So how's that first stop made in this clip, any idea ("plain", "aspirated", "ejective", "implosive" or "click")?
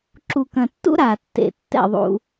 click